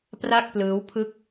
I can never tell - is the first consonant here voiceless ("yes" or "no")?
yes